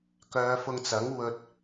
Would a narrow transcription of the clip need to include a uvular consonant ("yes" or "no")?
no